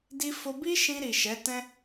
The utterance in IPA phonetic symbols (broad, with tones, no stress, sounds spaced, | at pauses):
d i˧ f o˧ b i˦ ʃ ĩ˧ ɾ i˨ ʃ ɛ˨˦ t ɛ̃˦